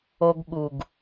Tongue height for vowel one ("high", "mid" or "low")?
mid